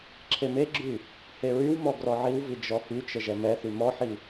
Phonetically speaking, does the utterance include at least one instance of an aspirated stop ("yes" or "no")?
yes